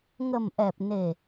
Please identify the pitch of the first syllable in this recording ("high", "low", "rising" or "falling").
low